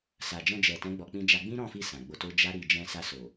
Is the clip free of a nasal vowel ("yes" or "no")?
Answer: no